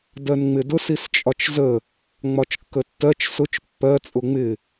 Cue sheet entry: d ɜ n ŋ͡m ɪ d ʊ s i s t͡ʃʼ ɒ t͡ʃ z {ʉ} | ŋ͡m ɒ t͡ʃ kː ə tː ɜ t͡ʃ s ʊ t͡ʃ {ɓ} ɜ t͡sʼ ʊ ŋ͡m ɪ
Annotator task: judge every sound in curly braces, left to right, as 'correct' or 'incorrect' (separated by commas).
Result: incorrect, incorrect